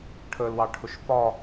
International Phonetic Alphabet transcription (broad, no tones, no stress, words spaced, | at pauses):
ʈʰəlwɑʈʰʊʃ fɒ